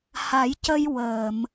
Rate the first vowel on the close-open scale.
open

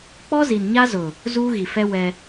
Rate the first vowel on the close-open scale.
mid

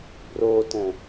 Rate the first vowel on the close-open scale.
mid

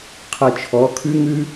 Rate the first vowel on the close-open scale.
mid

